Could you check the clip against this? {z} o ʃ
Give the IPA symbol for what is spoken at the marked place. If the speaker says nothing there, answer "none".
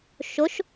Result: ʃ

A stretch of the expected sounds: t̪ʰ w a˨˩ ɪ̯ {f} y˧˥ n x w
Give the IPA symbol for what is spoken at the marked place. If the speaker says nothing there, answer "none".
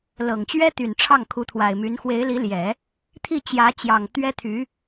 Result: m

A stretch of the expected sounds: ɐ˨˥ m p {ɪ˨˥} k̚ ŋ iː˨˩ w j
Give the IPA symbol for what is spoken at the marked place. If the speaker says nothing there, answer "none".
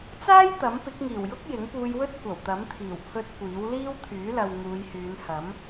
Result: ɪ˨˥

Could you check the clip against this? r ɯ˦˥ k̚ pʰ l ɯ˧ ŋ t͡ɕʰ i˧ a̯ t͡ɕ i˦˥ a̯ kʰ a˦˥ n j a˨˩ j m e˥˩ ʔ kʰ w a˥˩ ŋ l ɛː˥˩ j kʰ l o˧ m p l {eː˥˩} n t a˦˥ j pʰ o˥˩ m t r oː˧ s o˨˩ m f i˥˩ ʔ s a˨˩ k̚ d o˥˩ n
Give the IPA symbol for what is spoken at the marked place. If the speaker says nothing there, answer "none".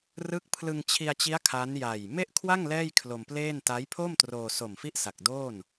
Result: eː˥˩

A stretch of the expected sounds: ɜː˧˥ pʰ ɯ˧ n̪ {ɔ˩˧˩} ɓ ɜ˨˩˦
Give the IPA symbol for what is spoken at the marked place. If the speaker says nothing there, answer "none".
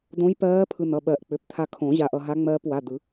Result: ʌ˩˧˩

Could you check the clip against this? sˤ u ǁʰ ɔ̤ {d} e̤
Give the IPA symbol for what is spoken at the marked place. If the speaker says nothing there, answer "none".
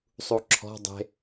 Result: dˤ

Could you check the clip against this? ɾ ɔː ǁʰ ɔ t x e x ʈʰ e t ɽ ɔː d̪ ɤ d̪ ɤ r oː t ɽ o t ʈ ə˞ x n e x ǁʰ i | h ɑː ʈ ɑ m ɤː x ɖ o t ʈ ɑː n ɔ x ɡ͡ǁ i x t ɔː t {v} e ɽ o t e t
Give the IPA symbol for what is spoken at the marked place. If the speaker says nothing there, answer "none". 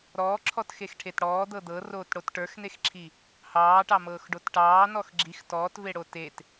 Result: v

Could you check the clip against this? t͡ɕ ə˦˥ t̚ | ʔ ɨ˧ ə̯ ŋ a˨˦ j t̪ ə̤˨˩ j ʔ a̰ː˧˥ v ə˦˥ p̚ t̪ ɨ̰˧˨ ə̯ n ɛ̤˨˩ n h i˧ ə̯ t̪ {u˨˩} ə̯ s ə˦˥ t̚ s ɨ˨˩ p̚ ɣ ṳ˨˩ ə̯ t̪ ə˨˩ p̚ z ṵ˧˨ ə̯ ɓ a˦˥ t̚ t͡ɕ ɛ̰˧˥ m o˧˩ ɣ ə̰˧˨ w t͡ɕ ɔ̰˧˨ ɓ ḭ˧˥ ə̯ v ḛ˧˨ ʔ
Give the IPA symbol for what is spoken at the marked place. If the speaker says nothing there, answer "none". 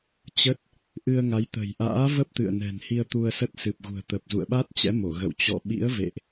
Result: u˧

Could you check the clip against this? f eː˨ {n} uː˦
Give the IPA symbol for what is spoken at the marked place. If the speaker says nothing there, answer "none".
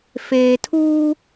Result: tʰ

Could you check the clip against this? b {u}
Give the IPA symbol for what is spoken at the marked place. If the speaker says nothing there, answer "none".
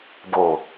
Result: o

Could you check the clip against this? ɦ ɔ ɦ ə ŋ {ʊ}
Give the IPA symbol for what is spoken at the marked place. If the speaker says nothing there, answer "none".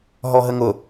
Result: ʊ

